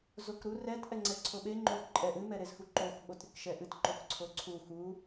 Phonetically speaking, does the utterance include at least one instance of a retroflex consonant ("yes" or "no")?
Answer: no